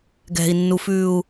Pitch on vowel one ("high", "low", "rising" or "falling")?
low